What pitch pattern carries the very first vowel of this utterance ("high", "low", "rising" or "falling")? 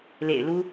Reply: low